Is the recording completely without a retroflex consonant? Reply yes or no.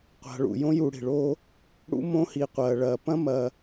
no